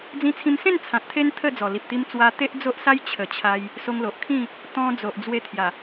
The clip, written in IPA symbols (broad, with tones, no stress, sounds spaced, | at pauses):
d͡z ĩ˧ t͡sʰ ĩ˧ m s ẽ˥˧ n t͡sʰ ã˨ t̚ t̪ʰ e˦ n t̪ʰ ə˥˧ d͡z ɔ˨˩ l i˨ p̚ t̪ i˧ m t͡s w a˧ t̪ e˦ ʔ d͡z o˦ ʔ s a˦ j t͡ɕʰ ə˨˩ t͡ɕʰ a˧ j | s o˧ ŋ l o˨ ʔ kʰ ĩ˥˧ | t̪ ɔ̃˧ d͡z o˨ ʔ d͡z w e˧ t̪ʰ j a˨˩